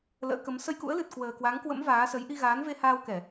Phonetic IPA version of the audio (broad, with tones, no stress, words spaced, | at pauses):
lə̰ː˧˥kə˨˦m sə˧jkṵ˧˥ə̯lɨ˨˩t̚ kwəː˨˩kwa˨˦ŋ kwə̰˧˥m vaː˨˦sə˨˦j ʔi˧ɣaː˨˦nve˧haː˧w kɛ˧˩˨